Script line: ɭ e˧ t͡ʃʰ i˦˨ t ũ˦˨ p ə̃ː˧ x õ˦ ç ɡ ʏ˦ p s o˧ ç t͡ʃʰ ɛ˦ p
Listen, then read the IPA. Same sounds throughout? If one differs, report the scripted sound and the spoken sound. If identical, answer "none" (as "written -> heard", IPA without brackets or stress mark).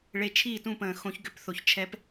s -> θ